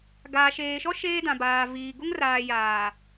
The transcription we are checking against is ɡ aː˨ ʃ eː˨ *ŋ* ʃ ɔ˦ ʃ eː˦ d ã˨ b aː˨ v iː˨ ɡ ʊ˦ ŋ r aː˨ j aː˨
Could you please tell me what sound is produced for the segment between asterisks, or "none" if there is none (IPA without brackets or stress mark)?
none